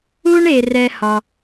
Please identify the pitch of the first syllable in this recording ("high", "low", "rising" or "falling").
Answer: high